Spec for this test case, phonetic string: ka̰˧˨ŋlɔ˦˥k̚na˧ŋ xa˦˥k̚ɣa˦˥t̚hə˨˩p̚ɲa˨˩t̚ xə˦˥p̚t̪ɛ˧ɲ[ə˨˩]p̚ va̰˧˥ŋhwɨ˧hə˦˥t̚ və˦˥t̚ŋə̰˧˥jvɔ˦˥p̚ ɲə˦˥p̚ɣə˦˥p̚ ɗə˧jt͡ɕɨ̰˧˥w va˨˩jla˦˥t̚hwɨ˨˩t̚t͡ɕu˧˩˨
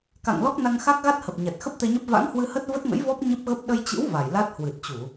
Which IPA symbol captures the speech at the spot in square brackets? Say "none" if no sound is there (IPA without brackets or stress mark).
ə˦˥